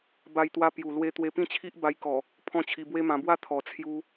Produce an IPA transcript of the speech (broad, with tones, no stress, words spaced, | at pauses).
ba˧jt̪wa˧ pju˨˩ lwe˧ t̪we˧pĩ˥˧t͡ɕʰi˦ʔ ba˧jkɔ˨˩ | pʰɔ̃˥˧t͡ɕʰi˧bwe˦ mã˧bwa˦ t̪ʰɔ˨˩t͡sʰju˧